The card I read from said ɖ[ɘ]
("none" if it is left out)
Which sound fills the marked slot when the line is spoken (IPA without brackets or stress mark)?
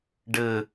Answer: ɘ